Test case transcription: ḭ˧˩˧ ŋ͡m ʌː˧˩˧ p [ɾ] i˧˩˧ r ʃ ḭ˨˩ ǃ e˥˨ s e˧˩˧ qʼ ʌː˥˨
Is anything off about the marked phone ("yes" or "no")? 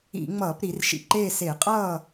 no